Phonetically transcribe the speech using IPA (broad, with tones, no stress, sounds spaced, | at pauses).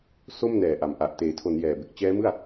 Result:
s o˥˩ m n ɛː˨˩ ʔ a˨˩ m ʔ a˨˩ ʔ t eː˩˦ tʰ o˩˦ n j ɛː˨˩ b e˨˩ k̚ t͡ɕ ɛː˦˥ m ɯ˥˩ a̯